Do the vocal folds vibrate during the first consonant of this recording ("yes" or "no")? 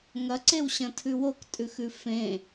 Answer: yes